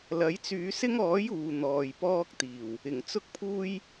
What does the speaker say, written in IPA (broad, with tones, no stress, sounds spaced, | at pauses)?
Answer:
l ɐ˨˥ j t͡s yː˨˧ s ɪ˥ ŋ ɔː˨˥ j uː˨ n̪ ɔː˨ j p ɔː˥ k̚ t̪ iː˨˩ w | ɪ˨˩ ŋ t͡s ʊ˥ k̚ pʰ uː˥ j